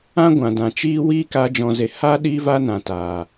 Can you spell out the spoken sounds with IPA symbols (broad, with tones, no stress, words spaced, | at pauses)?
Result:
ã˦ ɡʷã˨dã˨t͡ʃiː˦ wiː˦ka˧ d͡ʒɔ̃˧ze˧ haː˦ ɗiː˦va˦ nã˨taː˨